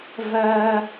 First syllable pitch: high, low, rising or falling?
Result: high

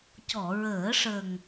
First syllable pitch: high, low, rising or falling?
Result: low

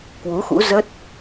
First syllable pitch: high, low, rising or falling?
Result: rising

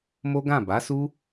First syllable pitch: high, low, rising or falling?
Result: high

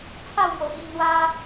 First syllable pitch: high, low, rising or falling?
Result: falling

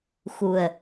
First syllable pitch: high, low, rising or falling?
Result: low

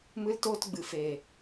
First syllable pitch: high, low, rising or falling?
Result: high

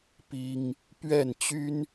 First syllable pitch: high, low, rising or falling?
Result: high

